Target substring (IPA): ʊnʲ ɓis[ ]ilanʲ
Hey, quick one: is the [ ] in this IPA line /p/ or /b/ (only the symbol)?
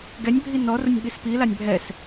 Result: p